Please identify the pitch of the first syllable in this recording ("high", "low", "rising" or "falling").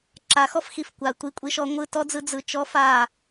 rising